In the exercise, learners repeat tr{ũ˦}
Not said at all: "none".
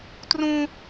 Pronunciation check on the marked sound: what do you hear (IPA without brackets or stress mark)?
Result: ũ˦